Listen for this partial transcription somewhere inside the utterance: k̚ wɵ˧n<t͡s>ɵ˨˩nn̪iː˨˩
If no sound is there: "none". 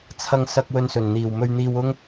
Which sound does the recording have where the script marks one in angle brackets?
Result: s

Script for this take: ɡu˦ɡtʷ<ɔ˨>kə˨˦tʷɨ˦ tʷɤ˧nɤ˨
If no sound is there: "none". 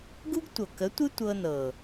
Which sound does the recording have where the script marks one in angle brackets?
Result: ɤ˨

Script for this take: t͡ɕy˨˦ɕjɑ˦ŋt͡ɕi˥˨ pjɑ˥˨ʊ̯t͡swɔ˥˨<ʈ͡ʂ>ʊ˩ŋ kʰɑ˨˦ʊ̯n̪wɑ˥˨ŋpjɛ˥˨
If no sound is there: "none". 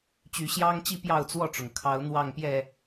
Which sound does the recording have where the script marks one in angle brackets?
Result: ʈ͡ʂ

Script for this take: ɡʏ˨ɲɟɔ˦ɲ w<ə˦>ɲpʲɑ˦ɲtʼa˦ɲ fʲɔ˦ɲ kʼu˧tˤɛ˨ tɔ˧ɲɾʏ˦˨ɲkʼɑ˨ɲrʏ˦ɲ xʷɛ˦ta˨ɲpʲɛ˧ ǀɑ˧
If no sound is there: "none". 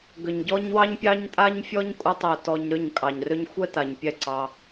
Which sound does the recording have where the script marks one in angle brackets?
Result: ɑ˦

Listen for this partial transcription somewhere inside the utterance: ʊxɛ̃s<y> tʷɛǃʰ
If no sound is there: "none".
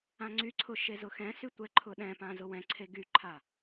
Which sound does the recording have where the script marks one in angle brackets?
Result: y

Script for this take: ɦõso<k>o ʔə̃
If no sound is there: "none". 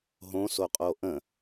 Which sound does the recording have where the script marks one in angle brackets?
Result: qʼ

